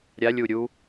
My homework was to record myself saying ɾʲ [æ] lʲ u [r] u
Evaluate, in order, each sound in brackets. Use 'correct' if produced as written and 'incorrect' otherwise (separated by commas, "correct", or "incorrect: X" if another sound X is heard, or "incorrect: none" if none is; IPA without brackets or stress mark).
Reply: incorrect: a, incorrect: ɾʲ